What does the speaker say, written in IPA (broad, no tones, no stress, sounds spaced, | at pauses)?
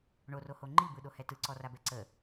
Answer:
ɳ o r o h o ŋ͡ǃ i b ɯ ɗ o h ɛ t ɯ ǀ ɔ r a b ɛ ǀ ə